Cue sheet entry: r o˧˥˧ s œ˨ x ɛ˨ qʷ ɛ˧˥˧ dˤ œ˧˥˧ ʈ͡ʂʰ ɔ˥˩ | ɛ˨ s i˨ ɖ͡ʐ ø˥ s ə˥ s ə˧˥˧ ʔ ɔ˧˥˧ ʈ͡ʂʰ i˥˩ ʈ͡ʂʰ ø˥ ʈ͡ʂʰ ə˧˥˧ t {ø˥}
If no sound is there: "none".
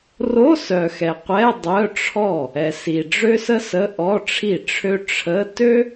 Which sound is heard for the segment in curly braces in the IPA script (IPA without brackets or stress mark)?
ø˥